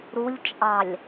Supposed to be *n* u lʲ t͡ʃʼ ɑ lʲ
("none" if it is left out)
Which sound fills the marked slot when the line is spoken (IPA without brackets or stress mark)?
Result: ɾ